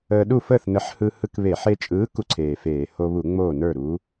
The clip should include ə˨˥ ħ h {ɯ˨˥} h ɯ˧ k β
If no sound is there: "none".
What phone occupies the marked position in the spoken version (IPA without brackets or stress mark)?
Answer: ɯ˧